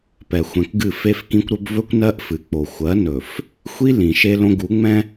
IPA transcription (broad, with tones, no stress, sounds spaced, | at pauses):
p ɛ˨ xʷ ɛ̃˨ k ɡ ɨ˦˨ f e˦ f k ĩ˦ kʷ ɾ ɵ˦ b v ɵ˦ kʷ n ɜ˦ ʔ f ɨ˨ k͡p o˨ xʷ ɜ˨˦ n ɵ˨ f | xʷ i˦ l ĩ˨ ʃ e˦ l õ˦ ɡ u˨˦ ŋ͡m ɛ̃˦